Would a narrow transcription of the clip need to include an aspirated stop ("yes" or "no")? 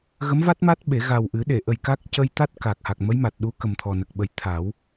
yes